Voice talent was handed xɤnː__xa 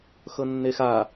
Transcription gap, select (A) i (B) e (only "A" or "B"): B